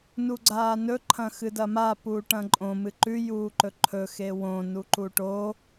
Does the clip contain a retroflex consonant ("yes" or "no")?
yes